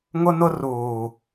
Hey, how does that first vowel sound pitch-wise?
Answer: high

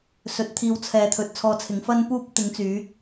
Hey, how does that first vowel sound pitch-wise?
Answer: low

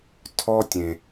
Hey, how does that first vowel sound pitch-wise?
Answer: high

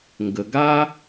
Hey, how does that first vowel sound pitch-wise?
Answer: low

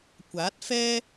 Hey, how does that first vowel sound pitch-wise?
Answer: rising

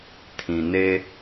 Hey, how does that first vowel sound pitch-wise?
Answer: low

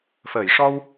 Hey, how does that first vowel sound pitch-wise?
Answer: low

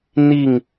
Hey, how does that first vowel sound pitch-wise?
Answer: falling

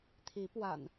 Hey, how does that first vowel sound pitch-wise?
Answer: rising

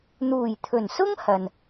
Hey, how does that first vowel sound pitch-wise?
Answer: low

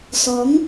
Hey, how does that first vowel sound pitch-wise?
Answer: rising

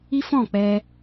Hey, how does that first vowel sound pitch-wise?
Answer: high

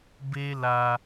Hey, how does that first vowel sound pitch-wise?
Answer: high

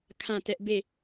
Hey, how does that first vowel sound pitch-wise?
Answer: falling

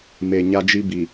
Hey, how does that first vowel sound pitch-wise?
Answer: low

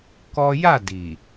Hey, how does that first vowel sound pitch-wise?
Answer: high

